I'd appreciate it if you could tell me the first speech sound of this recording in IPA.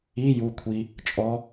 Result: i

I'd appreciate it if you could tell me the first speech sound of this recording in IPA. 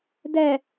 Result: d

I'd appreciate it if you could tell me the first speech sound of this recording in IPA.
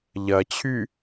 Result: ʎ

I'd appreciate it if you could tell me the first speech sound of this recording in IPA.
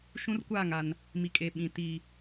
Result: ʃ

